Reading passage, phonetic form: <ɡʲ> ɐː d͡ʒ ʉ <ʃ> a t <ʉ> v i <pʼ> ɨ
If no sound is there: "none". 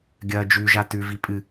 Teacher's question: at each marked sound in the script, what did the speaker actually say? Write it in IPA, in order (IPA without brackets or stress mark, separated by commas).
ɡʲ, ʒ, ʉ, pʼ